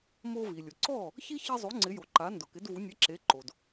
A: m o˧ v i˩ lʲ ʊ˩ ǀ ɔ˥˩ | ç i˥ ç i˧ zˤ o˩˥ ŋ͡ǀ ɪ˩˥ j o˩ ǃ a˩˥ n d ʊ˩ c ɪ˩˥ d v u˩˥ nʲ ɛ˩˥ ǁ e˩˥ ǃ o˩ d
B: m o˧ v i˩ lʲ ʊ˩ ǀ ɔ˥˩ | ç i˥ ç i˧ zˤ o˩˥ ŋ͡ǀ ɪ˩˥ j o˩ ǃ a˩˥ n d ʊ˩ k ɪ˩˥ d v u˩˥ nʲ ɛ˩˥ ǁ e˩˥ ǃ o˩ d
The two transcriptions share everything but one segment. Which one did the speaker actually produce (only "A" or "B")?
B